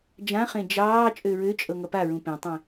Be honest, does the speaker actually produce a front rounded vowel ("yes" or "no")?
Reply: yes